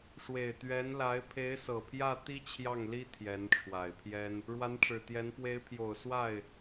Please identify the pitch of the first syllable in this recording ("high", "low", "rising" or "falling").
low